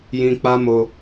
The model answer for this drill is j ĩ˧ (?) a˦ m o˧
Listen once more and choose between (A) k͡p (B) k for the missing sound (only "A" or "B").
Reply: A